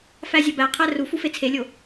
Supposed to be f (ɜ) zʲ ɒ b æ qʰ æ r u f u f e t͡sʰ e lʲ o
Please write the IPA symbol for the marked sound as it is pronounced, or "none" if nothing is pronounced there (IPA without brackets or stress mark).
æ